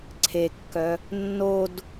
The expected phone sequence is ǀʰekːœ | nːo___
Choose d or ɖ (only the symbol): d